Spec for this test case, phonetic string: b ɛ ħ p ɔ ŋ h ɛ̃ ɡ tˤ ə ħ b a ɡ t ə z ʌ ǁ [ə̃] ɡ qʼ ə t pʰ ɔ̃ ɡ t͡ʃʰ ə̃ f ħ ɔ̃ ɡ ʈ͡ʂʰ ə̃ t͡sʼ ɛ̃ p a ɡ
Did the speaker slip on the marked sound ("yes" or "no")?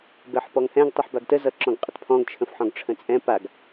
yes